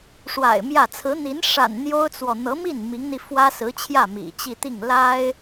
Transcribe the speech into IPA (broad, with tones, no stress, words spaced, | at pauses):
ʂwa̰˨˩ɪ̯ mjä˥˩ t͡sʰɹ̩˧˥n̪i˧˥n ʂa̰˨˩n n̪jo˥ʊ̯t͡swɔ˨ n̪ɤ˧˥mi˥˩n mi˧˥ŋn̪i˧ fwä˥sɹ̩˧˥t͡ɕʰjä˥˩ mḭ˨˩t͡ɕi˥˧t̪i˥˩ŋ la˥ɪ̯